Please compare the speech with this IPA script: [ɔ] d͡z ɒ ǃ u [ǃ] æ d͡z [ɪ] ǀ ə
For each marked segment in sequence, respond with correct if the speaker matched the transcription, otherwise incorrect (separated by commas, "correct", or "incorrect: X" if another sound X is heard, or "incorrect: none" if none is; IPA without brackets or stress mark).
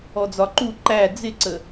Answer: correct, correct, correct